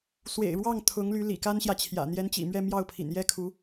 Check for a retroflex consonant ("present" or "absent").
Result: present